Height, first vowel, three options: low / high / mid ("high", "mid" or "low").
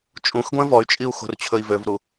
high